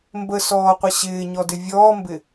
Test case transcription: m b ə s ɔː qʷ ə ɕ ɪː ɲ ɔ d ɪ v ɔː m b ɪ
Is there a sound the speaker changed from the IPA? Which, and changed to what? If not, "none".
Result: v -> vʲ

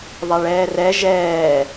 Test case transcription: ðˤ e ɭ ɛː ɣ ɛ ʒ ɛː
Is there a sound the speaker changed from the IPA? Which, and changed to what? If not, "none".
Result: ɣ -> r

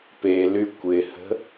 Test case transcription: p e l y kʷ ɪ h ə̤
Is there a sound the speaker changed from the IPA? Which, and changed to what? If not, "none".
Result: none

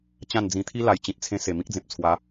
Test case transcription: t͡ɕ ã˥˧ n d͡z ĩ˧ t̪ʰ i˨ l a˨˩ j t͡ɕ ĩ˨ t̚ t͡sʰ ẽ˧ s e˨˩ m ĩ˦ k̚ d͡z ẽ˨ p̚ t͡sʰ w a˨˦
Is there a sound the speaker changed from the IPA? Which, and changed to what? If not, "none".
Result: i˨ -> i˦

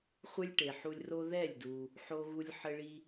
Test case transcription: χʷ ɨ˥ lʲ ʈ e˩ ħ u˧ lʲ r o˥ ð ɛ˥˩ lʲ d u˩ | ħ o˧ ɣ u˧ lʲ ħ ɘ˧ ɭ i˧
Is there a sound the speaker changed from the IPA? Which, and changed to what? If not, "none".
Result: none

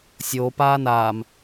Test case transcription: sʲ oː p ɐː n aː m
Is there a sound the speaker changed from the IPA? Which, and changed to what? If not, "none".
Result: ɐː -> aː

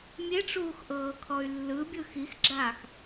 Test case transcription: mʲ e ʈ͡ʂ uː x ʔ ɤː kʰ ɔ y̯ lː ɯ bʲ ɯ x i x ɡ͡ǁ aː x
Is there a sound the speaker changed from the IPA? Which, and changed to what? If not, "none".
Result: none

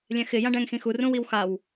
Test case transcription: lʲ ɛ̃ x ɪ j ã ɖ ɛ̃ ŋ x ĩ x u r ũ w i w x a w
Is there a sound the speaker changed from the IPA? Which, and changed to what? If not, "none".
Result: none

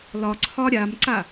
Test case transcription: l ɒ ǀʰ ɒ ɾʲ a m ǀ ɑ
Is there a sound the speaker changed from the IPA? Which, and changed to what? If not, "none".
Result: ɑ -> a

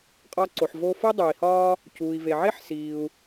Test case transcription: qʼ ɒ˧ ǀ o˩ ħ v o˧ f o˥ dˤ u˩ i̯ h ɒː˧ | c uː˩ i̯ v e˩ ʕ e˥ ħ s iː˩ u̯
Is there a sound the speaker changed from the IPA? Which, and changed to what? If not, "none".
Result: none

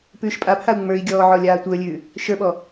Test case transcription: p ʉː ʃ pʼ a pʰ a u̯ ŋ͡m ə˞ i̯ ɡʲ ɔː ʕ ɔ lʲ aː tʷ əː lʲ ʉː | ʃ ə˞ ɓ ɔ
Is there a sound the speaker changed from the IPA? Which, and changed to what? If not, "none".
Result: none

